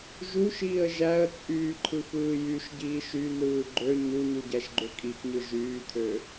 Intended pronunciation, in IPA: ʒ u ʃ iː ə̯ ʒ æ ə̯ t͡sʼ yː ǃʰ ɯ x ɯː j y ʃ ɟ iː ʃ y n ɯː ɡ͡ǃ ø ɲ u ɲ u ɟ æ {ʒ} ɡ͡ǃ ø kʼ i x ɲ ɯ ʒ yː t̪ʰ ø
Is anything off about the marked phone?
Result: yes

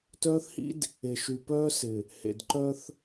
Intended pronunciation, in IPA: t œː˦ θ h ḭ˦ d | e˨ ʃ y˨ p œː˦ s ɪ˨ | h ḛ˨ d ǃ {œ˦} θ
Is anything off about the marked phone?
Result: no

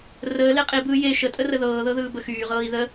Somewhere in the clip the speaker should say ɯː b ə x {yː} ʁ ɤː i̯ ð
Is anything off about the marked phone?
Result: no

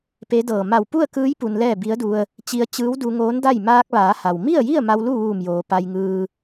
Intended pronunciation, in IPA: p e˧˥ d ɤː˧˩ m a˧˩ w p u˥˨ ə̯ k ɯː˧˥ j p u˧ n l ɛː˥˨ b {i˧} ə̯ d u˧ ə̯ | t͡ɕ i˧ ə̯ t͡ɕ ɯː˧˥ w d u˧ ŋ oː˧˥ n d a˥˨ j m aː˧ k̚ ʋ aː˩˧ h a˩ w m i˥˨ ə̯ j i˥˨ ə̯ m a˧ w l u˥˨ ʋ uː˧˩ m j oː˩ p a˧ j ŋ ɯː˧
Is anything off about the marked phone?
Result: yes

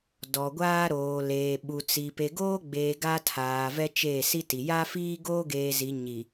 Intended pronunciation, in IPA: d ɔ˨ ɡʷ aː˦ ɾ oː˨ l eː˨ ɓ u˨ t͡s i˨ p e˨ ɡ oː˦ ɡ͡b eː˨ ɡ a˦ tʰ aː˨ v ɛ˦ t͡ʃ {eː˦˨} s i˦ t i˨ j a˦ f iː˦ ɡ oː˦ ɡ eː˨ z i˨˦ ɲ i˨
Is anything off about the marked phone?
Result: no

